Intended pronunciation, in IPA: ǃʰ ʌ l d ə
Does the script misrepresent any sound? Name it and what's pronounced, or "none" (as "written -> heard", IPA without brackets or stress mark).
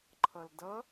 ə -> ʌ